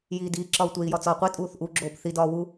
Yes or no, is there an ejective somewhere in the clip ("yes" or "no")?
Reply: yes